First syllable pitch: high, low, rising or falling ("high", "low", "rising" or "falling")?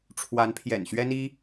rising